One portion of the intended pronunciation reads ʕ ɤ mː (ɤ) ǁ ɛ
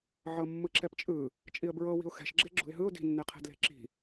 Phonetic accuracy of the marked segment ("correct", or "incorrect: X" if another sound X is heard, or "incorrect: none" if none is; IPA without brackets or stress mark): incorrect: ɯ